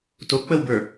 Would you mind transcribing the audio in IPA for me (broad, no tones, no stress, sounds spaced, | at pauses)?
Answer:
t o k͡p ə w b ə˞